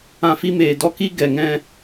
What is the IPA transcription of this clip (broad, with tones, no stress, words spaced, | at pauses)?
ã˧fi˦meː˨dɔ˦ ki˦ɡɛ˨ŋɛ̃˧